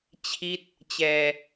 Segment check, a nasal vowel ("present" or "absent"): absent